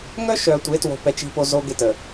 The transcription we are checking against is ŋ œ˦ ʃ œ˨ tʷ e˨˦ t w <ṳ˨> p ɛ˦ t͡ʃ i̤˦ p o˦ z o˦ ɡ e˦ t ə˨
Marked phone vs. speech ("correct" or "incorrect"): incorrect